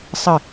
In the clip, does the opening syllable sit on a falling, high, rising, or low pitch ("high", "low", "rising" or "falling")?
falling